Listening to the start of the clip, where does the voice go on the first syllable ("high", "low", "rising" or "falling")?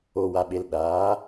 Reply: low